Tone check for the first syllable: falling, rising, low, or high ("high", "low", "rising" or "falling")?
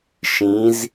rising